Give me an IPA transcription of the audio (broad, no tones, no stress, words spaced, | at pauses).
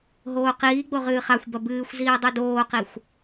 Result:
ɦoːqiːɡ͡bo ʁɨːχaxʷbɐ bɨːxʷziː dˤudoːqixʷ